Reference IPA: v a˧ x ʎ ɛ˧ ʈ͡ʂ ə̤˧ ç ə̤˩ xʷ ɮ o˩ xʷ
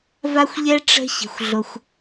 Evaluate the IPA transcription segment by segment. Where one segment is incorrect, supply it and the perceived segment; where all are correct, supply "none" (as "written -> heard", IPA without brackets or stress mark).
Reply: x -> xʷ